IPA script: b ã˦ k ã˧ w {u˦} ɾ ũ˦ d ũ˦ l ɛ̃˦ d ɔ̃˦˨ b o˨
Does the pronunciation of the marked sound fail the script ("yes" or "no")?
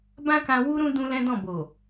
no